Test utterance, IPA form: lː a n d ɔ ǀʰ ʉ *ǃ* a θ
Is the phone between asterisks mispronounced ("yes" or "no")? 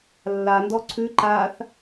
no